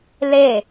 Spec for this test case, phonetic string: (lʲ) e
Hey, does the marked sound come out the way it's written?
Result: no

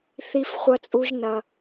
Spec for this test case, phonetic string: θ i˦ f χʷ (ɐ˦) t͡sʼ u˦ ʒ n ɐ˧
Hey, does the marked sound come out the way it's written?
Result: yes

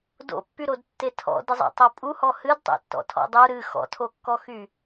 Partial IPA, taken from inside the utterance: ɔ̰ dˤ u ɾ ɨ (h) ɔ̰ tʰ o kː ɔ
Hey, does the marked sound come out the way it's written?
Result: no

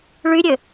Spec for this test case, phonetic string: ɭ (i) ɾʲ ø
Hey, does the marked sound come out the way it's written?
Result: no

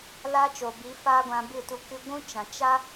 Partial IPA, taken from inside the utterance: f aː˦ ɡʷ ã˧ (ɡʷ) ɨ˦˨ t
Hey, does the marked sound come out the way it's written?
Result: no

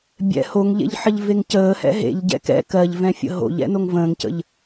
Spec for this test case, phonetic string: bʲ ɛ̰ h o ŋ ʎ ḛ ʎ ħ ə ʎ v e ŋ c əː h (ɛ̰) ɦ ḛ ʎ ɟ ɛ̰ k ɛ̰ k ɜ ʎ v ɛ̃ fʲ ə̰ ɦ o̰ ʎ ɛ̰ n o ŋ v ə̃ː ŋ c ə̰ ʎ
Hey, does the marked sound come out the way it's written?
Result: yes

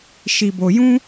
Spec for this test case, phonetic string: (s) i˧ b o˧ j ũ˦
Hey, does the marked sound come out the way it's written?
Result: no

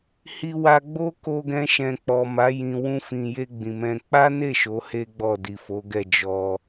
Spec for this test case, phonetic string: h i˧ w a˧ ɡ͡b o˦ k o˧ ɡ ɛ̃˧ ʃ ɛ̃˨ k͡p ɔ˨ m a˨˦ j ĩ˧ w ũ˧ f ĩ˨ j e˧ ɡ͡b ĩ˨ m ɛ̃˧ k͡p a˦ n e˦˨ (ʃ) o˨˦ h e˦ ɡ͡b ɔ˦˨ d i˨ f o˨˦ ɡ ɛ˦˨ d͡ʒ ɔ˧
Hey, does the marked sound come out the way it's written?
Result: yes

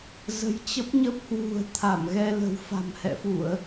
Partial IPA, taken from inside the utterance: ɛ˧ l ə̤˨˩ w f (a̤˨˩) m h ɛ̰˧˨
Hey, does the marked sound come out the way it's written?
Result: yes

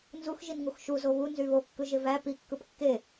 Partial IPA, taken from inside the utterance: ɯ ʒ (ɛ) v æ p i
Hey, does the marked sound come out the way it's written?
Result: no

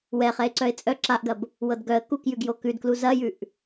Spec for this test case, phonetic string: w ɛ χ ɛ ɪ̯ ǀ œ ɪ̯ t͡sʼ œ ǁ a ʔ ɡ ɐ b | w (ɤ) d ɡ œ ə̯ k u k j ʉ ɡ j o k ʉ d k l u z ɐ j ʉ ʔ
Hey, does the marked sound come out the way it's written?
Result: yes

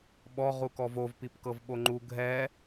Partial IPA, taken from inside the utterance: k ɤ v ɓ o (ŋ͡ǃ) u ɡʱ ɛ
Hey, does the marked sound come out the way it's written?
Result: yes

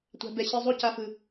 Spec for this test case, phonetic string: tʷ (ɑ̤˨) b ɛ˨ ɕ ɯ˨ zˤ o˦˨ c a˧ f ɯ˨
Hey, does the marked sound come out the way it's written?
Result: no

